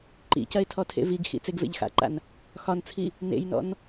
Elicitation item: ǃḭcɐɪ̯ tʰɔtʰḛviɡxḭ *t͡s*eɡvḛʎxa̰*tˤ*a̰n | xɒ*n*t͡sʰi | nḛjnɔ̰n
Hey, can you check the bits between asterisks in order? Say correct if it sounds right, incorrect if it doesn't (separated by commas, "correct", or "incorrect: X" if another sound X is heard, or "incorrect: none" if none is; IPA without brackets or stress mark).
correct, incorrect: ǃ, correct